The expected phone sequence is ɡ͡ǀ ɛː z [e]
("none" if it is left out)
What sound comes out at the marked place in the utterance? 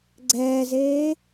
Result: eː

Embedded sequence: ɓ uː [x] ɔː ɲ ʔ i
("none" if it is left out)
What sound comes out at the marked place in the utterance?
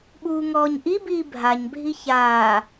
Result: ŋ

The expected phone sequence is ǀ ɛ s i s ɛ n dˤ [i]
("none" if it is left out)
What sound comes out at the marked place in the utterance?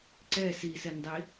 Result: i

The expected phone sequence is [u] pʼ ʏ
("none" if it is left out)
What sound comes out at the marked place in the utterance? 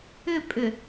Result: ʏ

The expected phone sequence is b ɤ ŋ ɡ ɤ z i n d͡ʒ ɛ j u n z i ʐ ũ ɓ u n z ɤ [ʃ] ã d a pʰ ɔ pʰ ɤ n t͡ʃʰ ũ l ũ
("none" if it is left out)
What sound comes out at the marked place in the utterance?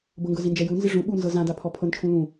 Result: z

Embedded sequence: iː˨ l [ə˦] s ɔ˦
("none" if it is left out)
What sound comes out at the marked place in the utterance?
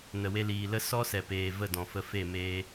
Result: ə˦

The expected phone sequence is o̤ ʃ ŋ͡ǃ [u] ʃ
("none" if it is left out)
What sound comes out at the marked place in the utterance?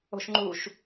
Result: u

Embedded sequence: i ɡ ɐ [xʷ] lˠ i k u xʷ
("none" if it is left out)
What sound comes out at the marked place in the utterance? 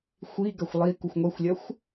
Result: xʷ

